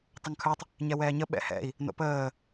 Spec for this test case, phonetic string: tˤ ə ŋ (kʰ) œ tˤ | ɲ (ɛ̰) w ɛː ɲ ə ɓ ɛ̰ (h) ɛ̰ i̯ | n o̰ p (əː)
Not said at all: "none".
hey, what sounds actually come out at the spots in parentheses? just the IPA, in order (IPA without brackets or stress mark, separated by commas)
kʰ, ɛ, h, əː